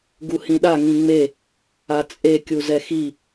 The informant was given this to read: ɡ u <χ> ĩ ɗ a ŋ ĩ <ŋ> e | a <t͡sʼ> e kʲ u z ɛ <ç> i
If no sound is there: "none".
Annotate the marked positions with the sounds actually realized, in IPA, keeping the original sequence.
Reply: h, ŋ͡m, t͡sʼ, x

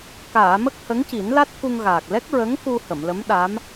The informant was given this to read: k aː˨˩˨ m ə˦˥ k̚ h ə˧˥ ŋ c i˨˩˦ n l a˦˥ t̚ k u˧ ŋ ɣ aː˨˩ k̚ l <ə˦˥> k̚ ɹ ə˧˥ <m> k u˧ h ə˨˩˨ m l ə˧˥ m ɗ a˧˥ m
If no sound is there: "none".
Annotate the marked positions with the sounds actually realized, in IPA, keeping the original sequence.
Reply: ɛ˦˥, ŋ

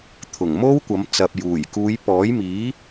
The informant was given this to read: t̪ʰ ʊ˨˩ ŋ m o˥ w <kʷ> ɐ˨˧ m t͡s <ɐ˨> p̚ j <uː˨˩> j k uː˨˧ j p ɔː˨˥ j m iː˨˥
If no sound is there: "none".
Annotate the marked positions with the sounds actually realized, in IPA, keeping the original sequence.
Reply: kʷ, ɐ˨, uː˨˩

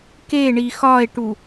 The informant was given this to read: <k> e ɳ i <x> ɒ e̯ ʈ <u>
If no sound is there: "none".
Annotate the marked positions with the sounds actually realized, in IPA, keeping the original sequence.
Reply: k, x, u

